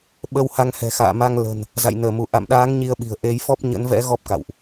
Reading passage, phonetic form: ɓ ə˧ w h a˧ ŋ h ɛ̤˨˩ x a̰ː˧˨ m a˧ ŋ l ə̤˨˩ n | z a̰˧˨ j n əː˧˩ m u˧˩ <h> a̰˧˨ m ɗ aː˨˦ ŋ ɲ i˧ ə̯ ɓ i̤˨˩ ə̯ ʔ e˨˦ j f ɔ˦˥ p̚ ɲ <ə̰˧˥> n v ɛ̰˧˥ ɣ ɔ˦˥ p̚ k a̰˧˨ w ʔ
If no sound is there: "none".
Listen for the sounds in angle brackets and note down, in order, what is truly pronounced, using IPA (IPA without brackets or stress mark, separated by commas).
ʔ, ə̰˧˥